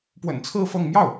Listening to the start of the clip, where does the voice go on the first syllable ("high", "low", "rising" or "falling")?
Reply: low